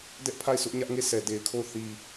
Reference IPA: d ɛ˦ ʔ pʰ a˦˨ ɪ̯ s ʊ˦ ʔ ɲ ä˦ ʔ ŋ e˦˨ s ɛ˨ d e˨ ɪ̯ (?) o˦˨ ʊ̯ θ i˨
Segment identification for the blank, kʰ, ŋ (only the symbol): kʰ